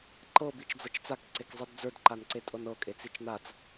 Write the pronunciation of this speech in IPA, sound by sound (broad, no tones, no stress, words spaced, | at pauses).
ǃɤ bit͡ʃd͡zɤt͡ʃt͡sak ǀekzˤidd͡zə˞d ǃanǀetʼɤnɤ kʼet͡sit͡ʃnat͡s